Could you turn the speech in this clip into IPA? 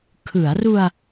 kʰɯ˩˦a̯ru˧a̯

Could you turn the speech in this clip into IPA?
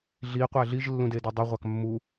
ɮiqʷæ ɮiʒlːũdedi dˤøʁʷɑk mːu

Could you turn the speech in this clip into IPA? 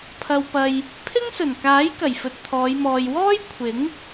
pʰɐ˧wpɐ˧j | pʰɪ˥ŋsɵ˨˩nkaː˨˥j kɐ˨˩jfɵ˨t̚t̪ʰɔː˨˧jmɔː˨j wɔː˥jkʷʰɪ˨˥ŋ

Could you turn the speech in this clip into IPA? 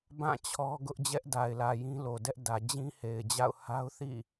bã˦˨ t͡ɕʰɔ˦ɡʊ˦ʔ d͡ʑɛ˦ʔda˨ɪ̯lä˨ jĩ˦lo˨dɛ˦ʔ dä˨d͡ʑĩ˦ he˨ɪ̯d͡ʑa̰˦˨ʊ̯ ha˦ʊ̯θḭ˦˨

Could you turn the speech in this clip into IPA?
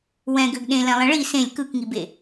wɛ̃ɡøɡ ɗẽlɛ̃lˠɛ̃ ɭi sẽlʲ kɯkŋibe

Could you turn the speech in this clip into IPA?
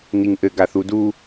niŋʔɘ ɡaθudu

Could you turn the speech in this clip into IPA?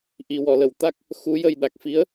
ʔi˨˩˨wɔ˨˩˨lə˨˩˨w t̪a˦˥k̚ | xu˧˥jə˧j ɗa˨˩k̚fi˧˥ə̯

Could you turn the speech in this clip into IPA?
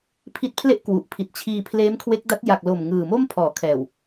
pʰi˦˥t̚pʰle˥˩ʔkwu˨˩ʔpʰi˨˩t̚ t͡ɕʰiː˧pʰleː˦˥mkʰwe˦˥k̚ da˦˥t̚ ja˨˩k̚lo˨˩m ŋɯː˨˩mo˥˩m pʰɔː˩˦kʰɛː˨˩w

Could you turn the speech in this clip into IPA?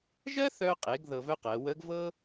ʒɜ˥θœ˧qʼe˩˧ɡ ðɤ˧vœ˥qɜ˩˧ wə˧˥ɡvɤ˥

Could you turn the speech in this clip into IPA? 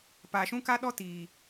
paː˨ʃũ˦ ka˦ ɗɔ˦tiː˨

